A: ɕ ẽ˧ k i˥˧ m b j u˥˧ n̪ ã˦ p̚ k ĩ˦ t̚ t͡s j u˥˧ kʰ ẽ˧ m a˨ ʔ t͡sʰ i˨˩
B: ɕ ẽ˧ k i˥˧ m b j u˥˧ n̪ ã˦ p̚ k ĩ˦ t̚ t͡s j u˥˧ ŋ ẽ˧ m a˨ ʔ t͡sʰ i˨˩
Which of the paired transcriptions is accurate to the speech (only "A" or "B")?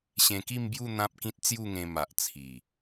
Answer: B